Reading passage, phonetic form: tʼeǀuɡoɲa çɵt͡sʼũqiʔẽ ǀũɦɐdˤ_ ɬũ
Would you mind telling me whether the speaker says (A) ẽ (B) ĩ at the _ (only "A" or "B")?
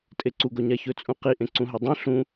A